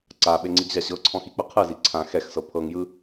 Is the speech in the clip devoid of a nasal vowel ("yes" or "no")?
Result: no